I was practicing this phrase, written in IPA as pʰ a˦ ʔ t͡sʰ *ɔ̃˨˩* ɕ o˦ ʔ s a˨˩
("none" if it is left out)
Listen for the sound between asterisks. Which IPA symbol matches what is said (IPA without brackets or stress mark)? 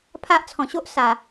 ɔ̃˨˩